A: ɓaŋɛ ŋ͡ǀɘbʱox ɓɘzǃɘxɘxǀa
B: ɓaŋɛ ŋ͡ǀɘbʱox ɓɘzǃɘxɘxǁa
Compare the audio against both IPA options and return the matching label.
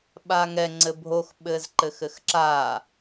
B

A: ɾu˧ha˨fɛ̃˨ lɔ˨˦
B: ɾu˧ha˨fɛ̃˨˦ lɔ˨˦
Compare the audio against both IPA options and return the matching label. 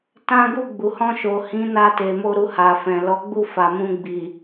A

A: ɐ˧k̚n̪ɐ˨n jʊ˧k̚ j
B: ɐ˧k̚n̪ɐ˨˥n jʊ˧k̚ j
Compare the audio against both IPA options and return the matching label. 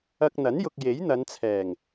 B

